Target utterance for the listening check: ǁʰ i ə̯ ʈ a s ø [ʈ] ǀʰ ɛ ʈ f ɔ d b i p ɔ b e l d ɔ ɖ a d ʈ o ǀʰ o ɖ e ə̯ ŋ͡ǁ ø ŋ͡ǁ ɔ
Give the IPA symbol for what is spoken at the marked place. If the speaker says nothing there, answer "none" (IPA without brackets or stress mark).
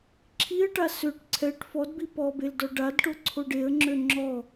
ʈ